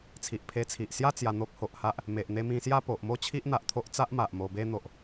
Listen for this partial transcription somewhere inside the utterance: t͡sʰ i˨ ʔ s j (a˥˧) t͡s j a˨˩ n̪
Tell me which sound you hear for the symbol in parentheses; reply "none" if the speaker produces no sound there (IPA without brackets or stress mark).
a˥˧